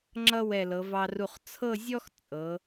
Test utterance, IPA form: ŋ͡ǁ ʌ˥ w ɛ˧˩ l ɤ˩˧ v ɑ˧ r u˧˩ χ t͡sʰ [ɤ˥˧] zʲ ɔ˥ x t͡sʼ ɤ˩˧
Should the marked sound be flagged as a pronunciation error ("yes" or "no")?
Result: no